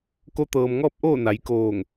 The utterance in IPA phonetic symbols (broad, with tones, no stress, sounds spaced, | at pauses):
k o˧ t̪ ɤː˩ m ŋ ɔː˥˨ p̚ ʔ oː˥˨ n a˩˧ j k oː˧˩ ŋ